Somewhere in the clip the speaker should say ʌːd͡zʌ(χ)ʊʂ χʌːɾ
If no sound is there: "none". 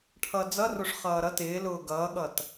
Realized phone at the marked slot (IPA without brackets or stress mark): r